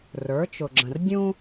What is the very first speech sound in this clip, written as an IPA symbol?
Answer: r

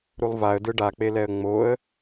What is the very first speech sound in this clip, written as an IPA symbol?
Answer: ɾ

